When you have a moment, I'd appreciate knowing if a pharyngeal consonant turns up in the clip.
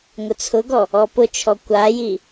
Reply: no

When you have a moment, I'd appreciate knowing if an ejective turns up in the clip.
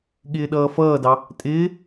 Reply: yes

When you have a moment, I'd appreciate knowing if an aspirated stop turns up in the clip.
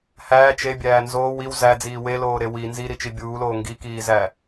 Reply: no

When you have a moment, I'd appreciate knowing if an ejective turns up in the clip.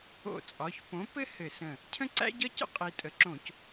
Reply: yes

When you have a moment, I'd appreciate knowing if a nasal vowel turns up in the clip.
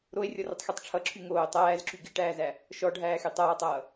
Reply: no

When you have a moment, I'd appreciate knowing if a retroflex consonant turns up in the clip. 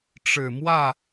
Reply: yes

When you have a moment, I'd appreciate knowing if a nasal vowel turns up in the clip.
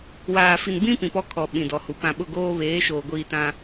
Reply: yes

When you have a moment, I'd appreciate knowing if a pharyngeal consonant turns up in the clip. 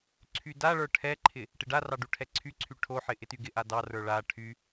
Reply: yes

